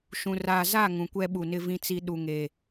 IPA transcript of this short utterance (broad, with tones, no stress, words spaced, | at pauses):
ʃũ˨ ra˨ za˦˨ ŋũ˨kʷɛ˦ɓu˨nɪ˦ vĩ˦t͡si˦ ɗu˨ŋe˨